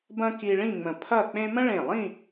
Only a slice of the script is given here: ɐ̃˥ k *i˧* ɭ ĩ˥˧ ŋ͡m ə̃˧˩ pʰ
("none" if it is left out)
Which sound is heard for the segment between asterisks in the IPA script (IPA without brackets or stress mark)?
i˧